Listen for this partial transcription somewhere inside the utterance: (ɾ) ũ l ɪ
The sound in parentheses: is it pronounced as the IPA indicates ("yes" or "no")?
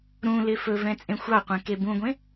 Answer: yes